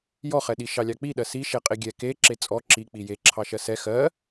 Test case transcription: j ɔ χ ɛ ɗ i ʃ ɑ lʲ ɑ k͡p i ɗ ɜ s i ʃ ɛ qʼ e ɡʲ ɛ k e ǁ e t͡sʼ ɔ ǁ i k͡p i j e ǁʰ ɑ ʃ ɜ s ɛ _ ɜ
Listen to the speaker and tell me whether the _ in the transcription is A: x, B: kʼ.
A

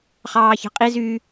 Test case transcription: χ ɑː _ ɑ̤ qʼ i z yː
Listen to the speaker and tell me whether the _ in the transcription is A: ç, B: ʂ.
A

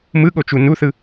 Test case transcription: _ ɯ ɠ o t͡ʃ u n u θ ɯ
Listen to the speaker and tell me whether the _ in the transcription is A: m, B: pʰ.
A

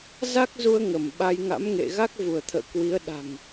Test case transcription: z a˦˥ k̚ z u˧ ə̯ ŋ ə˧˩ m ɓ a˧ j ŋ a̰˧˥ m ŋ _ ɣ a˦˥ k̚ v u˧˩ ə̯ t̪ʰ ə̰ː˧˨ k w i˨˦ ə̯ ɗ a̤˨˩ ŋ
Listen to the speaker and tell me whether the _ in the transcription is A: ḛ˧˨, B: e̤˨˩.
A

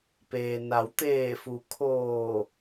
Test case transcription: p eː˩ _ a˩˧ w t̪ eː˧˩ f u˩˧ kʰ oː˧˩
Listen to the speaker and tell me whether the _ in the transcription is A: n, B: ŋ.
A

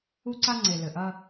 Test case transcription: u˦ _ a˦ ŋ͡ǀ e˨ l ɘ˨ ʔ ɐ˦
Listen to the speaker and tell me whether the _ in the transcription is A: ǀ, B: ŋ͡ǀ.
A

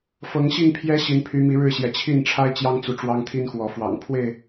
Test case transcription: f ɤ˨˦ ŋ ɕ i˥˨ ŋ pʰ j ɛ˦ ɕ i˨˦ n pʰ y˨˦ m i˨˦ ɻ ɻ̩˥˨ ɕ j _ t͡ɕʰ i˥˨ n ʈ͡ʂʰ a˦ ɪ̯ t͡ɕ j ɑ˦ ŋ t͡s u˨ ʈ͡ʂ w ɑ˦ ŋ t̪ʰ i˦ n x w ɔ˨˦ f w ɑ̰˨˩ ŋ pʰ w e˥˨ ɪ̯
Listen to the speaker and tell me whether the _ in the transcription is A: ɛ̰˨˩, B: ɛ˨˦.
B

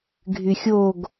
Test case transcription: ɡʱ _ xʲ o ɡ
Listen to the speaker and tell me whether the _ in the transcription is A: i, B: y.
B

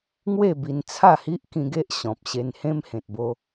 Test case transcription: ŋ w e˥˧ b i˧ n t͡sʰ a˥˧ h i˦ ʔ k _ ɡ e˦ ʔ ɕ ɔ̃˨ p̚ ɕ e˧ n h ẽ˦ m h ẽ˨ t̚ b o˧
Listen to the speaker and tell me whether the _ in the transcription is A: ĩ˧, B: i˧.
A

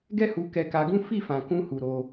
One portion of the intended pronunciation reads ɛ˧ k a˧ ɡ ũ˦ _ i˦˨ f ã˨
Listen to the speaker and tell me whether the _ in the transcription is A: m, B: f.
B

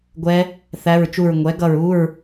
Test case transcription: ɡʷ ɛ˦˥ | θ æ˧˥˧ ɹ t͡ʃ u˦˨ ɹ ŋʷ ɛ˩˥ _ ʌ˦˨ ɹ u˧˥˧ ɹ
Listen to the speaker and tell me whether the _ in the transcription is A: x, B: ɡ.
B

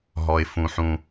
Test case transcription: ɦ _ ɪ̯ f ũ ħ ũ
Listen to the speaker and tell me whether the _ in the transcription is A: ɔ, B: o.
A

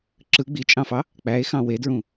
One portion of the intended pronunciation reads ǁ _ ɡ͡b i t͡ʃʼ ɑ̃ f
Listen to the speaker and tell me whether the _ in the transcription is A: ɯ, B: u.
A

